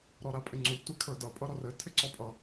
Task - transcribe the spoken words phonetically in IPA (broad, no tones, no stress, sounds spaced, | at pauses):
ɾ ɔ ɾ a pʼ ɪ ŋ͡ǀ u tʷ i kʰ ə˞ d ʌ pʼ ʌ ɾ ɔ r ɘ tʰ ɪ ǀ ɔ pʼ ʌ